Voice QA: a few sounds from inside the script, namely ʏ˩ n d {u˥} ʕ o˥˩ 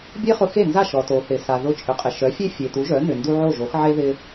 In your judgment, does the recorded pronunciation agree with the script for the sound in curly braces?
no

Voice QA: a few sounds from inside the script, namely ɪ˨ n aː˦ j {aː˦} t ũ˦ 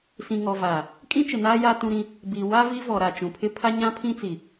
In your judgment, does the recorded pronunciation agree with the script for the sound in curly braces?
no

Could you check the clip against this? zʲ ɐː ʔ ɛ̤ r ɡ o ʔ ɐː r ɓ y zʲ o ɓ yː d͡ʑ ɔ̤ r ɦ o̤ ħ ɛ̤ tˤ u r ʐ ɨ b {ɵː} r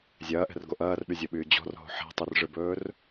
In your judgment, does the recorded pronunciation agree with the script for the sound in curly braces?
yes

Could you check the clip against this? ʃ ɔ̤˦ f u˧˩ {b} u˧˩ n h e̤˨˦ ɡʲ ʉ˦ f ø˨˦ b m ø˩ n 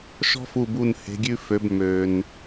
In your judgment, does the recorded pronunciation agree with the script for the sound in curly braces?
yes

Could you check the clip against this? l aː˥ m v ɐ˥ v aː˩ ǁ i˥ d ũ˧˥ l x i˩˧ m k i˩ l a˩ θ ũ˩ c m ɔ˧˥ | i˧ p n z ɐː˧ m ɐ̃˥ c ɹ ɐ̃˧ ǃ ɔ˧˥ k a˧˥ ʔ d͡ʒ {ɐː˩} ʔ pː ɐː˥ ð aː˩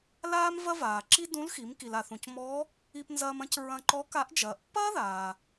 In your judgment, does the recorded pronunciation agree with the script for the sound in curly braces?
yes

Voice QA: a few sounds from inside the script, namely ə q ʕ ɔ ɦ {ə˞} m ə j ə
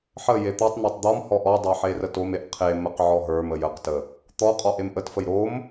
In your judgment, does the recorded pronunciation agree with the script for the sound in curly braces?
yes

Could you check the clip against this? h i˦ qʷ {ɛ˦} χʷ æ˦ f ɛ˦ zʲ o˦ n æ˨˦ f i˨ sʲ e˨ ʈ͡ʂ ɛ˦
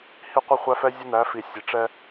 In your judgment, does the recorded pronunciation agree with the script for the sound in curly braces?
no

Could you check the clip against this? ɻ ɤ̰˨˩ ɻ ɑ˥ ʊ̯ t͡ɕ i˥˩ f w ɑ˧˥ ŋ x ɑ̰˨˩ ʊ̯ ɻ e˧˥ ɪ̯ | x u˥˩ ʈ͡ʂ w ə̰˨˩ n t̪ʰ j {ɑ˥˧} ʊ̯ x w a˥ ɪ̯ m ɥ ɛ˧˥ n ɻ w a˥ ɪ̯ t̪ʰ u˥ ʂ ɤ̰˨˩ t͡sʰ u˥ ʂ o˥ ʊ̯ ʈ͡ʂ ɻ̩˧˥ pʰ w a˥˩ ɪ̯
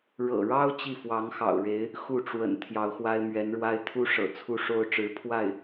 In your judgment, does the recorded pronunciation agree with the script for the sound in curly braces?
no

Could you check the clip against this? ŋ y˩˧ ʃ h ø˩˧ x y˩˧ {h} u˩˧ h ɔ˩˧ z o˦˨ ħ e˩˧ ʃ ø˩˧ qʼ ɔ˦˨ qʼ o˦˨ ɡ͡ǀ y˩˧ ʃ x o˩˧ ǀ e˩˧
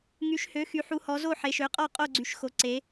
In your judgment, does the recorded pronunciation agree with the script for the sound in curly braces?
no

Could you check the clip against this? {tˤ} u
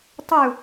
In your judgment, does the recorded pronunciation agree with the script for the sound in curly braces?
yes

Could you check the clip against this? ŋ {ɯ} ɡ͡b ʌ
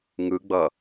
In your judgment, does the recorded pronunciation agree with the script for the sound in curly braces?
yes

